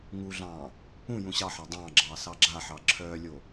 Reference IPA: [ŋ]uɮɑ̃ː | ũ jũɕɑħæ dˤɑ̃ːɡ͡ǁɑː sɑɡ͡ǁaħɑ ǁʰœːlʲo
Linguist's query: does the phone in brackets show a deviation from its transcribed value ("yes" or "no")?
no